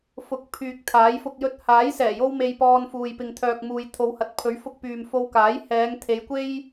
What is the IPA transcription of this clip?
f ʊ˨˥ k̚ pʰ yː˨ k̚ t̪ʰ aː˨˥ j f ʊ˧ k̚ j ɵ˧ t̚ h aː˨˥ j s ɛː˨˩ j o˥ w m e˧ j p ɔː˧ n f uː˨ j p ɪ˨ ŋ t̪ʰ œː˨ k̚ m uː˨ j t̪ʰ o˨˧ w h ɐ˨˥ t̚ pʰ ɵ˨˥ ɥ f ʊ˧ k̚ p yː˨ m f o˧ w k aː˨˥ j h ɛː˨˧ ŋ t̪ʰ e˨˧ j kʷ e˥ j

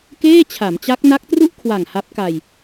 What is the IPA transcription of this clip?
k eː˥˩ t͡ɕʰ a˩˦ m t͡ɕ a˦˥ k̚ n a˦˥ k̚ t r u˥˩ ʔ kʰ w a˨˩ ŋ h a˦˥ p̚ k a˧ j

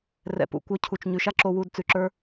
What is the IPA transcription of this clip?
r ɛ̰˨ p ṵ˨ kʷ œ˧ cʰ u˨ t͡ʃ ɲ ʉ˨ ʃ a˦ ǁ o˧ w u˧ d t͡s ʉ˨ ǁ ə˞˦

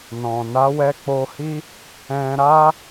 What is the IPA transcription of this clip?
n ɔ̃˨ n a˨˦ w ɛ˧ k͡p o˧ h i˦ | ɛ̃˧ ɾ a˦

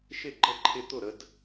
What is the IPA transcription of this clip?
ʃ ɪ˥˨ ɡ͡ǃ ə˥˨ ǃʰ ɪ˦ t̪ ʊ˥˨ ɾ ə˦ d

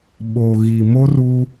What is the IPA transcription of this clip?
ɓ o˨ ɣ i˨ m o˦ r u˦

